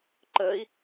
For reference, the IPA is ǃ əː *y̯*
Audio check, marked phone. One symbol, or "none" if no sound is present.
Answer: i̯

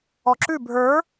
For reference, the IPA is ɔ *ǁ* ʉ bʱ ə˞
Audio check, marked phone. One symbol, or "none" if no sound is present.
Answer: ǁ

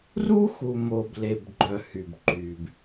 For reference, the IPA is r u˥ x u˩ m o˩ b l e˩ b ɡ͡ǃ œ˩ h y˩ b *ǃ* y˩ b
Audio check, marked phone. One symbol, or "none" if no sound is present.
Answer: ǃ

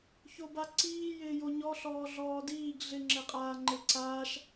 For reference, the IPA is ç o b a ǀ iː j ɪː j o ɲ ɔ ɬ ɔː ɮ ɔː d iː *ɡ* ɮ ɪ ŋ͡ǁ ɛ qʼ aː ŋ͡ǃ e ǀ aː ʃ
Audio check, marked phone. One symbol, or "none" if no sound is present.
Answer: ɡ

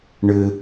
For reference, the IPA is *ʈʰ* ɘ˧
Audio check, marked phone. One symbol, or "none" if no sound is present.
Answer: ɳ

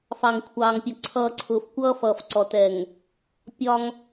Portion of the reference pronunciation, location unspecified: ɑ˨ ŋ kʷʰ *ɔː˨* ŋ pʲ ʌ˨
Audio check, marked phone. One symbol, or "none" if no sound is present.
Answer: ɑː˨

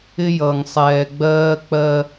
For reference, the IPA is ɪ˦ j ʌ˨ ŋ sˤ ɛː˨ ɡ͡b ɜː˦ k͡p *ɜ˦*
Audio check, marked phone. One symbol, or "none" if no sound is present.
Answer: ɜ˦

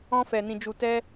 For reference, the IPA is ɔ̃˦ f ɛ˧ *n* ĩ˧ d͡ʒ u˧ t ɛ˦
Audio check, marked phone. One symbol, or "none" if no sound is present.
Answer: n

